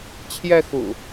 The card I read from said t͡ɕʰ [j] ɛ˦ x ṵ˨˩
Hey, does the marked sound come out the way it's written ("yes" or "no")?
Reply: yes